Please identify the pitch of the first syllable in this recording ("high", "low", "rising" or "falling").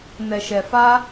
low